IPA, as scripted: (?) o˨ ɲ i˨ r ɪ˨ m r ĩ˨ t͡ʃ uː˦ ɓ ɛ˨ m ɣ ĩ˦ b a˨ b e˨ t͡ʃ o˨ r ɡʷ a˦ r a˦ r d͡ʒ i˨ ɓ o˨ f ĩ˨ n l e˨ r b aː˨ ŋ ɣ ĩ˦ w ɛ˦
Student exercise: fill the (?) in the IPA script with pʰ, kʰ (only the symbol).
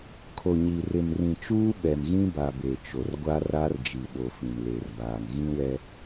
kʰ